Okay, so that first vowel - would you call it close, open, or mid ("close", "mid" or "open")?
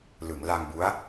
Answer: close